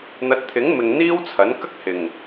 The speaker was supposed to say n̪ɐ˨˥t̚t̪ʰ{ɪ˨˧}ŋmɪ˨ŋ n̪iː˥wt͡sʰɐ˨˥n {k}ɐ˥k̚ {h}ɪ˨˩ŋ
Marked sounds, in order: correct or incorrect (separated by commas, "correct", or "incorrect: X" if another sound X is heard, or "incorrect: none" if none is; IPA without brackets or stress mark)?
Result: incorrect: ɪ˨˥, correct, correct